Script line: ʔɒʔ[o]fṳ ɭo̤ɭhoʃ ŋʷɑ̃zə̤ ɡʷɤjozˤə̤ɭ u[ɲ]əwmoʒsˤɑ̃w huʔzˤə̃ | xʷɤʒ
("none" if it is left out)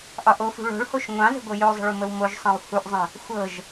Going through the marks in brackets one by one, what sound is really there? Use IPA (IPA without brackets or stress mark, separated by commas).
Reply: o, m